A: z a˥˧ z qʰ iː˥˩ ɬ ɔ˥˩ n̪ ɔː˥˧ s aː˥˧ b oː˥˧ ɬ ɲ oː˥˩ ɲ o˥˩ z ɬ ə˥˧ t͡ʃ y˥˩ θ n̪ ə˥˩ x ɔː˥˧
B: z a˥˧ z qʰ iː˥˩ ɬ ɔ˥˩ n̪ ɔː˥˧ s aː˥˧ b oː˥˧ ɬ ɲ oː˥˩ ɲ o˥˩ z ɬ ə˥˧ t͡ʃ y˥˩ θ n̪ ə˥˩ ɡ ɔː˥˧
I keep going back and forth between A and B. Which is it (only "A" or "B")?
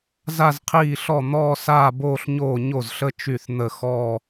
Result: A